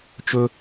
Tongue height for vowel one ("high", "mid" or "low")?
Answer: mid